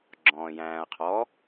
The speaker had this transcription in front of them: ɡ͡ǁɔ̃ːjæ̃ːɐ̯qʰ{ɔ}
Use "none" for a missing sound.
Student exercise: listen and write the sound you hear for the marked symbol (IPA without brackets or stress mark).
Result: ɔ